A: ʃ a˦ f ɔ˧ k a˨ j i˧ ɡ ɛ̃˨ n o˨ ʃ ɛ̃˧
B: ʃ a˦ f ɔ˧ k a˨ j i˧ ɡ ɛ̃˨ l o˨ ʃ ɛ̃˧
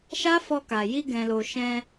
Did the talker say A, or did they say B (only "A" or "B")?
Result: B